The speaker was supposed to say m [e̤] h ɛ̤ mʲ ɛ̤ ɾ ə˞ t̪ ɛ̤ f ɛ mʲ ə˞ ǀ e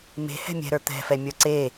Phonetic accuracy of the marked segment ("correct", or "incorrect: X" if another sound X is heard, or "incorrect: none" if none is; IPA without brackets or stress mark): correct